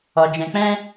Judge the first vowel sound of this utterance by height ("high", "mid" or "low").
mid